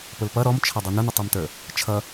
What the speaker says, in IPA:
p ʊ l p ʌ ɾ ɔ m t͡ʃʰ ʌ dˤ u n ʊ n ʊ tˤ ɛ m t ə˞ | t͡ʃʰ ʌ

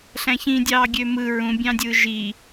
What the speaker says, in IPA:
ɬ æ̃ ç ĩ dʲ ɑː ɡʲ ø m ɯ ɹ ũ bʲ ɑ̃ dʲ ɯː ʒ i

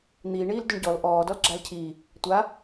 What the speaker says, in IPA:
n̪ iː ɳ iː l d ʏ ɳ ɟ ɔ l ʔ ɔː d ɔ l ɡ͡ǁ a l cʰ iː | tʷ a

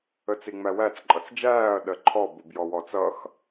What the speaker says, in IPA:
ə t͡s i ŋ͡m æ w æ t͡s ǃʼ ʌ t͡s d͡ʒ æː ɐ̯ ɗ ɜ ǃʰ ɔ b u b j ɔ w ɔ t͡s ʌ x

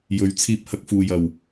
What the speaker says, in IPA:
j ɵ˨˧ ɥ t͡sʰ iː˧ p̚ h ɐ˧ k̚ f uː˨ j ɐ˨˩ w

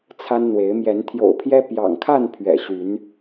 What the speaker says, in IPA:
t͡sʰ a˦ n n̪ w e˨˦ ɪ̯ m j ɛ˨˦ n t̪ʰ j o̰˨˩ ʊ̯ pʰ j ɛ˦ p j ɑ̰˨˩ ŋ kʰ a˥˨ n pʰ ɥ ɛ̰˨˩ ɕ y˨˦ n

